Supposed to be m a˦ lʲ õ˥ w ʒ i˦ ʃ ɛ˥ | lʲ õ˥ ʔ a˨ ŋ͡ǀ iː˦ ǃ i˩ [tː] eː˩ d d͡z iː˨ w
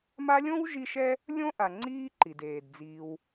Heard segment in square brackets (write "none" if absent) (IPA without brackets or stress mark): d